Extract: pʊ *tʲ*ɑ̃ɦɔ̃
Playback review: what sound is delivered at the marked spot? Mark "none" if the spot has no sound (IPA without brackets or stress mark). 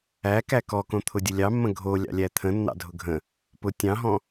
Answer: tʲ